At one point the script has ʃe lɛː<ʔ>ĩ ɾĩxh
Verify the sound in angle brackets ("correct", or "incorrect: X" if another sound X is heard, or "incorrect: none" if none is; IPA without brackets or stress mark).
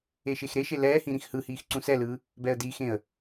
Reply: incorrect: h